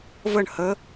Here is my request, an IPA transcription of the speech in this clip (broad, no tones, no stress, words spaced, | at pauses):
vəɳ hə